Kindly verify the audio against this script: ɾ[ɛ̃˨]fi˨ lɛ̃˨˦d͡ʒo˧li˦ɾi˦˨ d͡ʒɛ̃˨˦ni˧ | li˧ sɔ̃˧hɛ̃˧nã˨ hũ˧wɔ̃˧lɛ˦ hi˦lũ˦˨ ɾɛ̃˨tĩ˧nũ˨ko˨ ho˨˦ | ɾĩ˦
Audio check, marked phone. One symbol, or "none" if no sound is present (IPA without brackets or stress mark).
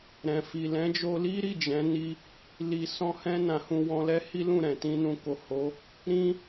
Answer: ɛ̃˨